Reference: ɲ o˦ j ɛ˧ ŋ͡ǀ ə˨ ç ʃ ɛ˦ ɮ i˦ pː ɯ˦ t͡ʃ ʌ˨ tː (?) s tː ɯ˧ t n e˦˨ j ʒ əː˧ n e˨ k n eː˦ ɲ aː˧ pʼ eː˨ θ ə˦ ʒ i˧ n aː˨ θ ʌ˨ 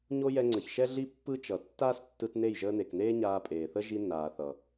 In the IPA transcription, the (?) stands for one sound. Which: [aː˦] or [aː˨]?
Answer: aː˦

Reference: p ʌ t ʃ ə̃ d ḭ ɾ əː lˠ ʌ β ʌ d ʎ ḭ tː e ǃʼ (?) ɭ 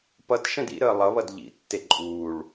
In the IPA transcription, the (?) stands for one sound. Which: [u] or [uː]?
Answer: uː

